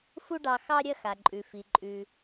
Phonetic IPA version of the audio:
fu˥ɖɑ˧ xɑ˥ ɾʲɐ˥xa˩ǃʼʉ˩ fi˩ǃʼʉ˩

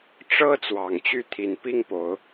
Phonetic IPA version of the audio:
ʈ͡ʂɤ˦ t͡swɑ˨˩ŋt͡ɕy˥˨ t̪ʰi˨˩npi˥˨ŋpo˨˦ʊ̯

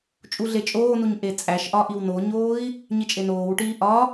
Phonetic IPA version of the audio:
t͡ʃʼuɮet͡ʃʼoːnuɲ ʔet͡sʼæʃʔɒ ʔiwnoɲoːi̯ | ɲit͡ʃʼenoːwʈiː ʔɒ

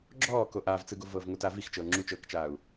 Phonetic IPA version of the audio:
ɡ͡ǁɔːko ʔaːvt͡sɯɡovɤːv ŋotaː vixt͡ʃɤː ŋ͡ǁut͡ʃɤːkt͡ʃaːu̯

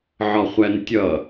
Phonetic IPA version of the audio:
ʕɒχʷæntʲʌ

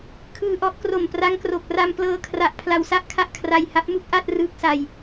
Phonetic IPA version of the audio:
kʰɯː˧ʔɔ˦˥ʔ kro˨˩mpra˦˥ŋkro˨˩k̚ ra˧mplɤː˧ kʰra˨˩ʔ pʰla˧wsa˥˩ʔ kʰa˥˩ʔkʰra˧jha˦˥p̚mu˥˩k̚ ʔa˥˩t̚ rɯː˦˥k̚sa˧j

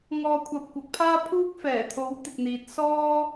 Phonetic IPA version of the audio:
ŋɔː˧kʷʰɐ˧p̚ kʷɐ˨˥k̚pʰaː˥ pʰuː˥k̚fɛː˨˩t̪ʰo˨˥w t̪ɪ˨k̚ n̪iː˨t̚ sɔː˥

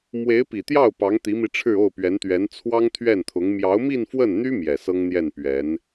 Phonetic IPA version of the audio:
mwe˧˥ɪ̯pi˨˩t̪jɑ˥˩ʊ̯ pɑ˧˥ŋt̪i˧˥mi˧ ʈ͡ʂʰɻ̩˥˧o˥˩ʊ̯ pɥɛ˧˥nt̪ɥɛ˧˥n t͡sʰwɑ˥ŋt̪ʰɥɛ˥˩nt̪ʰʊ˧˥ŋ mjɑ˧˥ʊ̯mi˥˧nfwə˥˩nn̪y˥ mjɛ˨˩sɤ˥ŋn̪jɛ˥˩n pɥɛ˧˥n

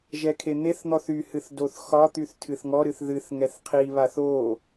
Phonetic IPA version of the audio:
ʒɛkʰen̪eθn̪ɔθ yhɨθ doθxɒt̪yθ tʰɨθŋɔɾɨθ ðɨθ ŋɛθqʰiβaθ o

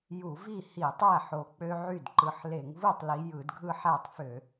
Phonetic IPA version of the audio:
ju˧˩˧vi˥˩hi˧˩˧tˤæ˥˩ ħo˧˩k͡pø˦ʕy˥˩dǃɯ˧˩ħ le˧˩˧ŋvu˥˩tˤli˨˦ jɯ˧˩˧dɡʱɯ˦ħæ˥˩tˤfø˧˩˧

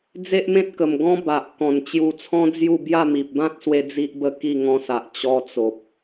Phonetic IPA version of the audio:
d͡ze˦ʔmẽ˦t̚kə˨˩m ɡɔ̃˦ba˨ʔ kɔ̃˨˩nt͡ɕju˧t͡sʰɔ̃˦d͡zju˥˧ bja˥˧mi˨p̚ bã˦t̚swe˧ d͡zi˦ʔbə˥˧ki˥˧ ŋɔ̃˧sa˨ʔ t͡ɕɔ˧t͡so˨p̚

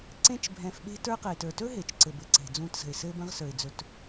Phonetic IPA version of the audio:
ǀẽ˦t͡ʃbʱɛ̃˨f ɓe̤˦ tə˞˦qɘ˩ɪ̯tə˞˩ tɵ˥ɦe˩t͡ʃǀɘ˩ bɘ˨ǀe̤˩d͡zũ˨tsə̤˩ɪ̯ sɘ˦bə̃˦ʁ sə˞˩ɪ̯ d͡zɵ˨t

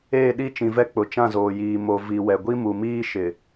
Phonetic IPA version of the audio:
eː˦˨ɗi˦˨t͡ʃĩ˨vɛ˦ k͡pʊ˨t͡ʃã˦˨zoː˨jiː˨ mo˨ vi˨wɛ˨ ɡʷi˦mu˨miː˦ ʃɪ˨

